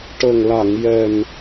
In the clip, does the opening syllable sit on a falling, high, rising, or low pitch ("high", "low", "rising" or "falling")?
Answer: low